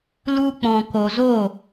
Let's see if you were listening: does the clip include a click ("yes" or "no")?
no